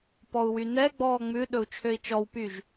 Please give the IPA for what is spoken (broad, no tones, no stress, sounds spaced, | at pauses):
p ɔ u̯ w y n ɛ ɡ͡b ɔː ŋ͡m ʉ ɗ ɵ u̯ t͡ʃʰ ø i̯ t͡ʃ ɔ w p y ʒ